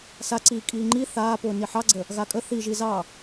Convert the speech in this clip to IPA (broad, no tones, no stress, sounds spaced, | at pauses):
s a ǀ iː kʼ iː ŋ͡ǃ i θ aː p ʊː n i ħ ɑ ɡ͡ǀ ə | ɣ a kʼ ə θ i ʒ i z ɑ